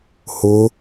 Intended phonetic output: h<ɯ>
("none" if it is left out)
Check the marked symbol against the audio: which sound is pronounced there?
ʊ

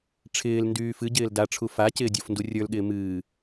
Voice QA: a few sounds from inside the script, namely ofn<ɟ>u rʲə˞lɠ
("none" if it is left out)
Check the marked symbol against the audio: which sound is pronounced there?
d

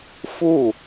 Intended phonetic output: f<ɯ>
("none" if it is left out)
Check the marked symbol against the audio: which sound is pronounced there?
u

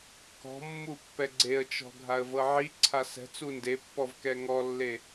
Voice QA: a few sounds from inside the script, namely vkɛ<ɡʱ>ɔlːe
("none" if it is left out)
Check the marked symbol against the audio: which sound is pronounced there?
ŋ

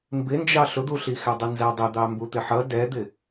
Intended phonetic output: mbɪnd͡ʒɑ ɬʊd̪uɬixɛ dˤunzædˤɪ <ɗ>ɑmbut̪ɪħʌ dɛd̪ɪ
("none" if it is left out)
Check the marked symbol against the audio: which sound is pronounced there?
d̪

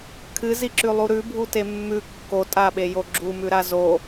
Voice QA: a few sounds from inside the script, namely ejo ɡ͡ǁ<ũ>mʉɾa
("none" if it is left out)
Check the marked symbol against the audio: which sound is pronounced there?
u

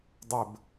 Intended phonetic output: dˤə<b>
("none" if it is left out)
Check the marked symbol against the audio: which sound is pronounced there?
b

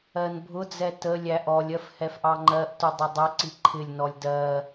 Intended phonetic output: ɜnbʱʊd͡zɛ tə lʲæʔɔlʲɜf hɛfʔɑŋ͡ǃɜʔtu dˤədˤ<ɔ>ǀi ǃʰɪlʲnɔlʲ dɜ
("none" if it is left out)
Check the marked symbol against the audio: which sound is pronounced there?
ʌ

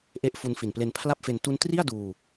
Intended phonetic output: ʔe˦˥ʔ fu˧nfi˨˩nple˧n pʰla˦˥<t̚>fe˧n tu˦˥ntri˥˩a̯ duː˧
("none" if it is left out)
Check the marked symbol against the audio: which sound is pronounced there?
p̚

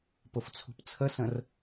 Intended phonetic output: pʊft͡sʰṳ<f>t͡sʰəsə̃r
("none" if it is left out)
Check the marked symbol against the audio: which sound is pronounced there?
p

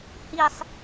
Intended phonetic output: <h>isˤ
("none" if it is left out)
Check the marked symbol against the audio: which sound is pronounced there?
h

